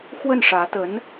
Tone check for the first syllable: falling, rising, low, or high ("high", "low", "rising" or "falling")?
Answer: falling